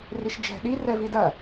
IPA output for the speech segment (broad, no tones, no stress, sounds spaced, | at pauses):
r i ʃ d͡ʒ ɛ̤ ɗ i r ɛ v i d ɐ